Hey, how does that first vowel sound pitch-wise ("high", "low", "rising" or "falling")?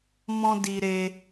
high